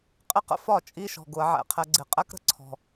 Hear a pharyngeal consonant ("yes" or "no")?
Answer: yes